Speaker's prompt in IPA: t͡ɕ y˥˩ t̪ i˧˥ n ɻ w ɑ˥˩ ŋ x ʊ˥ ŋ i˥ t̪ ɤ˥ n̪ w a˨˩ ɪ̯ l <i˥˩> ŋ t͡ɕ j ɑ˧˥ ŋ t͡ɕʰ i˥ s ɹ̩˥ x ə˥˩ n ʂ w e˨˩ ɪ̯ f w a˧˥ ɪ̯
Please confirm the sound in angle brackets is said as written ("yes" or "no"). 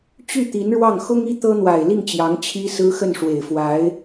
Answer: yes